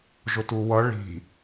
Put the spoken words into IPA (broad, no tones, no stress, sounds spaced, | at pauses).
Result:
ʒ ʊ t u w ʌ ɭ i̤